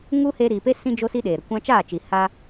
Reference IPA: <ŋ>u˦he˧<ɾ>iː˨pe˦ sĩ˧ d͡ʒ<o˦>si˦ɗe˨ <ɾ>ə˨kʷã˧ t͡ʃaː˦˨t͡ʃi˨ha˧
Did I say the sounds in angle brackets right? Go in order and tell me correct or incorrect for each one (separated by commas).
correct, correct, correct, correct